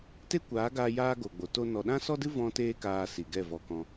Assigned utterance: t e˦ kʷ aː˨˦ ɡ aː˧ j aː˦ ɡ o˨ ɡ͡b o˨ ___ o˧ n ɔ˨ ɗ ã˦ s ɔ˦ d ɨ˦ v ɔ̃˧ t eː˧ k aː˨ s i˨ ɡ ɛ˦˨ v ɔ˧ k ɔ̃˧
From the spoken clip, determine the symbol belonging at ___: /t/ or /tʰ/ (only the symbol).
t